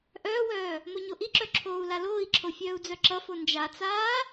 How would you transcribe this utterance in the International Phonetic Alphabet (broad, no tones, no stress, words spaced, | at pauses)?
ʔœːwœː | moɲoʔiǁœ ǁʰoːu̯laloːi̯ǁʰo fʲœːu̯d͡zœǁʌfo nd͡ʒat͡saː